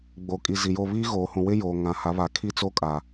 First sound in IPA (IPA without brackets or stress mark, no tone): ɡ͡b